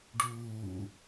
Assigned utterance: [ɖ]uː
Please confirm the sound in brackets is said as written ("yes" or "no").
yes